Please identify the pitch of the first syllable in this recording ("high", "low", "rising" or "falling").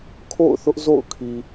falling